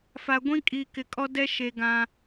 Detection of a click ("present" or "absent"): absent